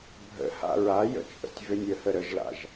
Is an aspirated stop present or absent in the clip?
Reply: absent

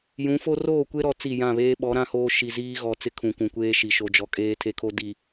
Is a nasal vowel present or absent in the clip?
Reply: present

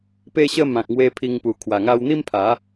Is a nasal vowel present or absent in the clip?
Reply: present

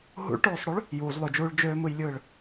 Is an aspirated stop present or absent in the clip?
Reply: absent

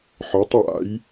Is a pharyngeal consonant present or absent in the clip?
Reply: present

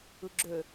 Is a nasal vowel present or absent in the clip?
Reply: absent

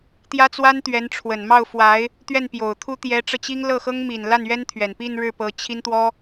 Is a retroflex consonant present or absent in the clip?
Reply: present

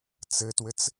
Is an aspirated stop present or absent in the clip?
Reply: absent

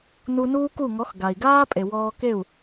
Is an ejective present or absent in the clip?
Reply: present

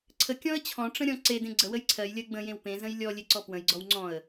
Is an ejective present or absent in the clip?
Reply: absent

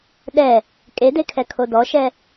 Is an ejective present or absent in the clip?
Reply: present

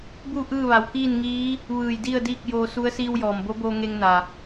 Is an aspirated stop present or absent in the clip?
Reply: absent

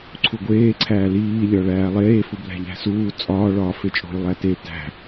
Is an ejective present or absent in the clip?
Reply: present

